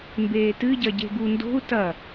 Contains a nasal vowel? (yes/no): no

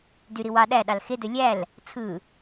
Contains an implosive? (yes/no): yes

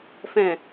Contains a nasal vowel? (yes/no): yes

